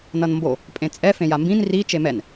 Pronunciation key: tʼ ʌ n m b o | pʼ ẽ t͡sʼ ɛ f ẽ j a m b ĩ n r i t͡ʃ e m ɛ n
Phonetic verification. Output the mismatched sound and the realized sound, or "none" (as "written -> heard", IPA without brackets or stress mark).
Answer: tʼ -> n